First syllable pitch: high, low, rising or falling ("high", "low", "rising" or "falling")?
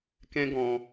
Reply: high